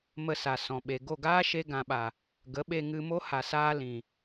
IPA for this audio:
mə˧sa˨ sɔ̃˨ɓe˨ ɡo˦˨ɡaː˦ʃe˧ ɡã˨ɓa˨ | ɡə˨˦ɓe˧ŋɨ˧mo˦ ha˨saː˧ lĩ˨

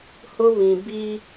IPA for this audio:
hʊ˦βĩ˨ bi˦

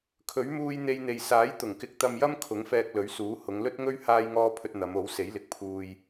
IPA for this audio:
kʰɵ˨˥ɥ muː˧j n̪e˧jn̪e˨j saː˨˥jt̪ʊ˨˩ŋkɪ˨˥k̚ t̪ɐ˧mjɐ˥m kʰʊ˨˥ŋfɛː˧k̚lɵ˨˥ɥsuː˨˥ hʊ˨˧ŋlɵ˥t̚ŋɵ˥ɥ haː˥jŋɔː˥ pʰɵ˧t̚ n̪ɐ˨˧m o˨˥wse˨˥j lɪ˨˥k̚pʰuː˧j

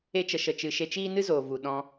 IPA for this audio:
e˧t͡ʃə˨ʃə˨ t͡ʃɨ˨ʃe˧t͡ʃiː˦ nɨ˦zoː˨vu˨ ɗɔ̃˧

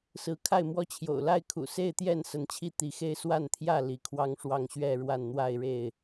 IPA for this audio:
sɹ̩˨˦kʰa˥˨ɪ̯mwɔ˦t͡ɕʰjo̰˨˩ʊ̯ la˥˨ɪ̯kʰṵ˨˩se˥˨ɪ̯t̪jɛ˥˨n sə˨˦nt͡ɕʰi˥˨t̪i˨˦xe˦ɪ̯ swa˥˨nt̪ʰjä˥˨ li˨˦kʰwɑ˦ŋʂwɑ˥˨ŋ ɕɥɛ˥˨ɻwa˥˨n n̪wa˥˨ɪ̯ɻe˥˨ɪ̯

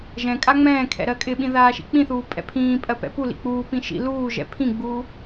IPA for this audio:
ʒɛ̃ kʼaŋ͡mɛ̃ːkʰɛ̰ ɾɜkʼɪɓĩ ðaːʃḭk͡pĩθuː pʼɛ̰pʰĩːpʼɜ pɛ̰pulḭ k͡puːpĩ ʃḭ luːʒɛ̰ pʰĩɡ͡buː

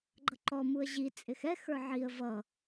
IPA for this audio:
ɡ͡ǃʌǃɔ muə̯ʑi t͡sʼɪxɛ xə˞ʕiə̯ vʌ

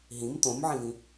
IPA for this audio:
ɦĩm t̪õmʕĩvĩ

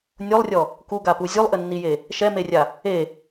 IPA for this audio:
nʲolˠrʲɔ | kuɡapu zʲulˠʔɘnːije | ʃɛmerʲa | e

